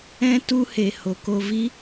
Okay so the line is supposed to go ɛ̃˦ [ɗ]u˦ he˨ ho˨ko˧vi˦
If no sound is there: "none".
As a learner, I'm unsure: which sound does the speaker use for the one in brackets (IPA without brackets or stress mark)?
t